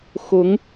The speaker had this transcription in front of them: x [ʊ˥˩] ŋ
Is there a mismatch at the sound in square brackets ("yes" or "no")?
yes